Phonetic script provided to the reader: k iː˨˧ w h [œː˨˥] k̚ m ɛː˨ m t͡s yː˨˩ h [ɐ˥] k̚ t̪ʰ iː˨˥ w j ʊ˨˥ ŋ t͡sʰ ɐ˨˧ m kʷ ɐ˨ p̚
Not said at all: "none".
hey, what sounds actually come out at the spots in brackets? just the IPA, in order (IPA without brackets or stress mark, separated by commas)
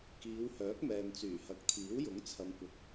œː˨˥, ɐ˨˥